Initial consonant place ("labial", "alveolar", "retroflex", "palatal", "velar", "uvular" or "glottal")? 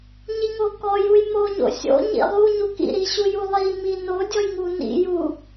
palatal